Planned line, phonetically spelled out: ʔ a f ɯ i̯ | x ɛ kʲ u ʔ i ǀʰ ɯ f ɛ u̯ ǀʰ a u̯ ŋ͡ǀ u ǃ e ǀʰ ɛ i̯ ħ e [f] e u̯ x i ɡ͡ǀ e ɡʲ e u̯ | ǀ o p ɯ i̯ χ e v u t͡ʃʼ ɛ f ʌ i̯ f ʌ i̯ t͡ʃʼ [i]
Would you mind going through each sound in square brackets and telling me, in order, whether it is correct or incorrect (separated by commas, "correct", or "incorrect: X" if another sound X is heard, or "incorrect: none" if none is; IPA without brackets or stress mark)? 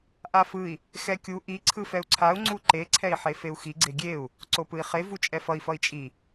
correct, correct